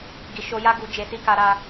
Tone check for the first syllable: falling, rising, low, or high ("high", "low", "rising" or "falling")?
low